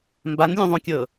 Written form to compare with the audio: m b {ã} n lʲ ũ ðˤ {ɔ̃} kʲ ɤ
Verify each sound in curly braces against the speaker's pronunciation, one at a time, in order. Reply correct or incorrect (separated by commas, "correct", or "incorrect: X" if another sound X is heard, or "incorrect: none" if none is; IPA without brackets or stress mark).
incorrect: a, incorrect: õ